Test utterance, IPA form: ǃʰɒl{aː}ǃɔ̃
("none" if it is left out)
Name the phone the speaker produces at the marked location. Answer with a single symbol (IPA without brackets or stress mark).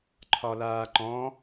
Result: aː